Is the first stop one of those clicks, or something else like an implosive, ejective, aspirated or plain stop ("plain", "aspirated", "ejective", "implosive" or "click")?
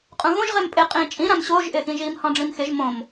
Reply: ejective